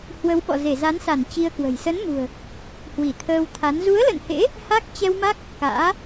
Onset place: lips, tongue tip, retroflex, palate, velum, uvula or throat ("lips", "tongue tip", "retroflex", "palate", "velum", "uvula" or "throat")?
throat